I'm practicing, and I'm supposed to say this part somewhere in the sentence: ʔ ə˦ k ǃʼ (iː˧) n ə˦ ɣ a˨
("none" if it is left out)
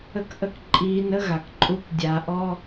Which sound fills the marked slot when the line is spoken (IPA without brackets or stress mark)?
iː˧